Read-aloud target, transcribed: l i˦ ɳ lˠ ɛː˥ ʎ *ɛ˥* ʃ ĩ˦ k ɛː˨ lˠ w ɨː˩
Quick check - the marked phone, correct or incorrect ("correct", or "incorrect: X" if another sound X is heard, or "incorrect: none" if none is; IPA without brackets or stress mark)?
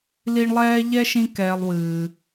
correct